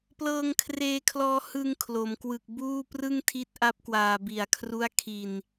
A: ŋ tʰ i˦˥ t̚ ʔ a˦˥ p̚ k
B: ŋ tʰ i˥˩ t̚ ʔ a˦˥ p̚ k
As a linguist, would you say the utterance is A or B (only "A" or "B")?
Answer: A